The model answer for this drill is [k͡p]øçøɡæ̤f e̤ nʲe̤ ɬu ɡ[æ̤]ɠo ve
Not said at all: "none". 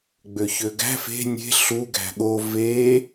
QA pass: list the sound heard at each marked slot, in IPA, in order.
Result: ɡ͡b, æ̤

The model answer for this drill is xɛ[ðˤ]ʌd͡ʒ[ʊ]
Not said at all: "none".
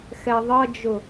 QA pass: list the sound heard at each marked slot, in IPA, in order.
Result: ðˤ, ʊ

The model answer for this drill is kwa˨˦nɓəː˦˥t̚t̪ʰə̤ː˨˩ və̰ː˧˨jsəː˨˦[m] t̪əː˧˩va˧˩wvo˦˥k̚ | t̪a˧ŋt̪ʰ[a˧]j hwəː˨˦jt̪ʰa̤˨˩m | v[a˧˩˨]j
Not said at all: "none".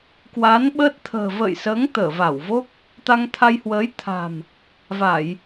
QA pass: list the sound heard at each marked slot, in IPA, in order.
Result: ŋ, a˧, a˧˩˨

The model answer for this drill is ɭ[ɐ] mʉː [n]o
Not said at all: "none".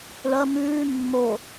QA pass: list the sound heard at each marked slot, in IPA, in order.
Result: ɐ, mː

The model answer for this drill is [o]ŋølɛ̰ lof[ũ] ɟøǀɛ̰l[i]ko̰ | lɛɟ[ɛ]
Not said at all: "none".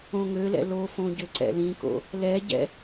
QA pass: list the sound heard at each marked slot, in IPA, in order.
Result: õ, õ, ĩ, ɛ̰

